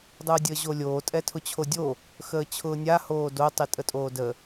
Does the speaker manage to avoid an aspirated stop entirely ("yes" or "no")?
no